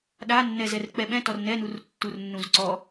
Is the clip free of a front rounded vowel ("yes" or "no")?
yes